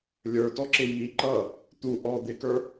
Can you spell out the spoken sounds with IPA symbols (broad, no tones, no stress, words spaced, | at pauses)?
lʲə˞tɔǁɪ ji ǃʌ | t̪u ʔɔ d̪ɪkə˞